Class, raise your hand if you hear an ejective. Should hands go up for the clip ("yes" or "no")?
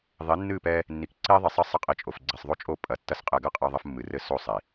yes